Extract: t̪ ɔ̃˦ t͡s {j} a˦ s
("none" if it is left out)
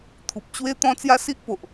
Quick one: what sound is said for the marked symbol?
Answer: j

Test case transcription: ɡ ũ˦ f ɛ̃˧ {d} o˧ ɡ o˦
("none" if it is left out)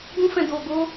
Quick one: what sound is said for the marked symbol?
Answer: d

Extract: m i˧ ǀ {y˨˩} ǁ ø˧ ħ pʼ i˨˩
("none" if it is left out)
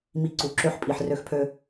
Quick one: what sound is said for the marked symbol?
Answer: u˨˩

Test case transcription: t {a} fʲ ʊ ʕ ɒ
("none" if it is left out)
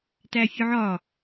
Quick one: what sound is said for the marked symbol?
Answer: æ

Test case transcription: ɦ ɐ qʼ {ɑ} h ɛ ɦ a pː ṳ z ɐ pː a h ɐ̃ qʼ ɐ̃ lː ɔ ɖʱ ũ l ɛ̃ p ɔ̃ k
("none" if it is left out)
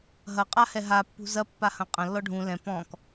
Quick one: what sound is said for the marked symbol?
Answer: a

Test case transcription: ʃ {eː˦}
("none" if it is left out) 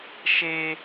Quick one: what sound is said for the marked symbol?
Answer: e˦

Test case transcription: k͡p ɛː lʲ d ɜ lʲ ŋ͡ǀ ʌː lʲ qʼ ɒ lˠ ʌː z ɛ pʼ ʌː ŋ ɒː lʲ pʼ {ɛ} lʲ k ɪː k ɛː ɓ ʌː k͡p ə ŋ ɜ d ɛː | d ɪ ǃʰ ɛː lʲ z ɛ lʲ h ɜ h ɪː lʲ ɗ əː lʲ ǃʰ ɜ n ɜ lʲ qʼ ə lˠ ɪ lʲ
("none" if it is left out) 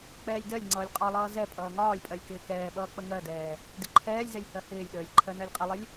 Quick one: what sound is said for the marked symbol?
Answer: ɜ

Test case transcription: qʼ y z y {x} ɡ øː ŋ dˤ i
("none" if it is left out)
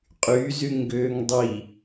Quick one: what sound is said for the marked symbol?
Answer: ŋ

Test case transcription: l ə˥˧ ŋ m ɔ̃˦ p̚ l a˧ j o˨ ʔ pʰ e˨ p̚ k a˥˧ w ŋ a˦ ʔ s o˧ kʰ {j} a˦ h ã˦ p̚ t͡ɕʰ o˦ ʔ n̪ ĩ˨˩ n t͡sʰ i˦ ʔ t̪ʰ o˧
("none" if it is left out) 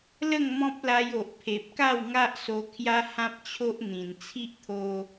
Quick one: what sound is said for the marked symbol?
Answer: j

